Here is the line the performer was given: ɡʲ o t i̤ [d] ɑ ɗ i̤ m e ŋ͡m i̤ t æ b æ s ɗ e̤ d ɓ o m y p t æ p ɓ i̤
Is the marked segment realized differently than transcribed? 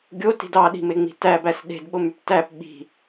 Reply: no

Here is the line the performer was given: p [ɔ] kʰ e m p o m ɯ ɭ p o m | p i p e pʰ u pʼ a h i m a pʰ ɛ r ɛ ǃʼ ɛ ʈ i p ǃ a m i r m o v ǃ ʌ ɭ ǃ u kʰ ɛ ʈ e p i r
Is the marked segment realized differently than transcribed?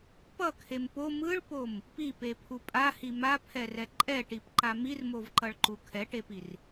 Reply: yes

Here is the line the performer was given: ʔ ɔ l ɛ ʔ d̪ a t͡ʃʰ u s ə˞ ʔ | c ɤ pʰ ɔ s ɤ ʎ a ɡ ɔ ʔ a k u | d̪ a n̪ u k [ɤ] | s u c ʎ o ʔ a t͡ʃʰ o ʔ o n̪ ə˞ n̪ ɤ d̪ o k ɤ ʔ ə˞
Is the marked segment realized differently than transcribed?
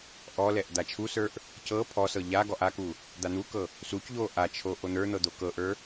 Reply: no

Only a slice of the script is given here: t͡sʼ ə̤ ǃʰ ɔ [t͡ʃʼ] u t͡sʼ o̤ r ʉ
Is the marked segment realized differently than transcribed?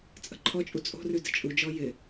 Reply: no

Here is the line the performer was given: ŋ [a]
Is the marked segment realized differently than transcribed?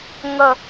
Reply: yes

